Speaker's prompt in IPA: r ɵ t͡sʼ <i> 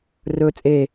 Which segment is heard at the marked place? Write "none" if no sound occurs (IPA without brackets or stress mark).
e